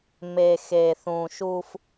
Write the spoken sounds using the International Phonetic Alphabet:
m e˨ x e˨ θ ũ˨ ʃ u˦ f

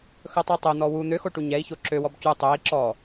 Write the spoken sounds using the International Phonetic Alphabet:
x ɵ tˤ i tˤ ø n̪ ɔ w u n̪ ø x o ʈ u ɲ ɛ i̯ ç o ǁ ø w ɔ b c u tˤ ø i̯ ǁ ɔ

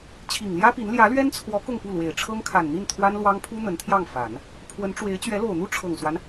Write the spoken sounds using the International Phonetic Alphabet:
t͡ɕʰ i˨˩ ŋ l j ä˥ p i˧˥ n l j ä˧˥ l ɥ ɛ˥ n t͡sʰ w ɔ˧˥ k ʊ˥˧ ŋ p u˥˩ l w e˨˩ ɪ̯ ʈ͡ʂʰ ɤ˥ ŋ kʰ a˨˩ n n̪ i˥˩ n t̪ʰ w a˥ n l w ɑ˥ ŋ pʰ u˥ n̪ ə˧˥ n t̪ʰ j ɑ˥˩ ŋ f a˨˩˦ n | pʰ w ə˧˥ n ʈ͡ʂ w e˧˥ ɪ̯ t͡ɕ ɥ ɛ˧˥ l o˨˩ ʊ̯ n̪ u˥ ʈ͡ʂʰ ɤ˨˩ ŋ s w a˦ n

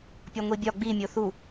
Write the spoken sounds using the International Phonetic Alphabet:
pʲ ɒ ŋʷ i bʲ ɒ ɡ͡b i mʲ o θ u

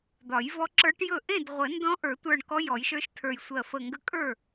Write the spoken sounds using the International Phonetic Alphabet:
d̪ ɒ˨˩˦ j v ɔ˧˥ ǁ ə˞˧˥ ʈ j ɵ˥˩ ʔ ẽ˥˩ d ʁʷ ə˨˩˦ n d ɔ̃˧˥ ʔ ə˞˨˩˦ tʷ ə˞˧˩ ɳ k ɔ˧˥ j ɔ˨˩˦ j ʃ ə˞˧˥ ʃ tʰ ə˞˧˩ j sʷ ɜ˧˩ f ə˧˩ ŋ ɡ ə˧˥ kʼ ə˞˥˩

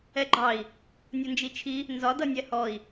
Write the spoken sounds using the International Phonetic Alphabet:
ɛ ɡ͡ǃ ɑ i̯ | nʲ ʊ n d͡ʒ i t͡ʃʰ i | n z ɒ d ʌ nʲ ɛ h ɔ i̯

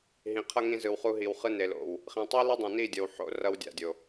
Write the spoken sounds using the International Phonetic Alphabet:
ɦ ĩ˨ qʰ ʌ˦ ŋ ĩ˧ z ɯ˨ w χ u˧ ɦ i˨ w χ ɯ˧ n e˨ l o̰˨ w | χ ĩ˨ tˤ ɯ˦ l ɯ˦ dˤ ĩ˨ n i˦˨ dʲ ʌ˨ w ħ o̰˧ r ʌ˧ w dʲ a̰˨ dʲ o˨

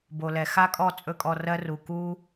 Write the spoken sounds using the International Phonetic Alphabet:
b o˨ l ɛ˨ x a˦ kʼ ɔ˦˨ t͡sʼ ɵ˦ kʼ ɔ˧ r ɜ˦ r u˨ k u˦

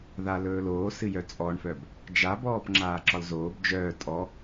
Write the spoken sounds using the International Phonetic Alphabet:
ð a l ɵː l oː s ɨ j œ t͡sʼ ɔ ɳ f œ b | d͡ʒ a b ɔː p ŋ͡ǁ aː ǁ ɒ l z oː b d͡ʒ œː tʼ ɔ

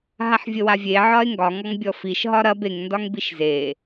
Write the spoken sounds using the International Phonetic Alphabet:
ɦ a ħ vʲ ə w a vʲ e ʕ ɒ e̯ ŋ ɡ ɒ ŋ ɔ ŋ bʲ ɔ f i ʃ ɦ ɒ ɾ ɐ b e ŋ n d ɒ ŋ b i ʃ z e

